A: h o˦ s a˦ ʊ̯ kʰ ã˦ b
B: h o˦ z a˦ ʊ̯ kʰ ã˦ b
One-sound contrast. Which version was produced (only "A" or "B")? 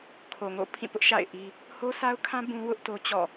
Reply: A